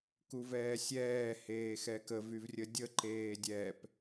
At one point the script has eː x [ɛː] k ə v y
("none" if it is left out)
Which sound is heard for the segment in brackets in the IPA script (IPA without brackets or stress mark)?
ɛ